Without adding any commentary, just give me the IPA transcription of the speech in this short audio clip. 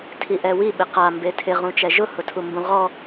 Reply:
tʰ i ʔ ɛ w i ɓ ɪ q a m b e tʰ ɪ ʁ ũ t͡ʃ ɛ ʒ ʊ h ʊ tʰ u m b ũ ʁ ɔ

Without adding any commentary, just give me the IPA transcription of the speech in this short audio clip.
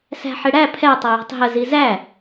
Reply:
s æ̤ ħ ɪ ɽ æ pʰ ɛ tˤ ə j ɔ̤ tˤ ɦ ə z i z æ

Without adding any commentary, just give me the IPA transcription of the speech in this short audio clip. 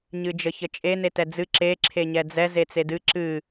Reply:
ɲ ɨ d͡ʒ ə ç ə t͡ʃʼ e n e t ɛ d͡z ɨ ǁ e ǁʰ e ɲ ɛ d͡z ɛ z e t͡s e d ɨ ǁ ɨ

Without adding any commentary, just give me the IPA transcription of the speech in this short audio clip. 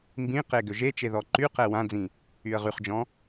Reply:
m b ĩ q e ɡ ø ʒ e t͡ʃ e ð ɔ ǃ y q ɛ w ã d͡z ĩ | y ə̯ ʁ y χ d͡ʒ ɔ̃

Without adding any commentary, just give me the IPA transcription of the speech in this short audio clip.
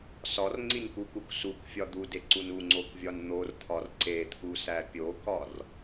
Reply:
s ɒ r ŋ͡ǀ i n k u k u k s u k fʲ ɒ d̪ u d e ǀ u n u ŋ͡ǀ o k vʲ ɒ n n̪ o r t̪ʰ ɒ r ǀ e t̪ʰ u s æ pʲ o k ɒ r

